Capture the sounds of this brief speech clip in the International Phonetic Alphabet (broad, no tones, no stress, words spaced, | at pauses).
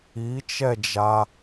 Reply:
it͡ʃɛd͡ʒa